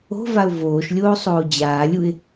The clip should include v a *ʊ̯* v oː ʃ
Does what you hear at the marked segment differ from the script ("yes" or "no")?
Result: no